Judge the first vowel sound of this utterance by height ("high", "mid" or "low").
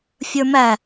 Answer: mid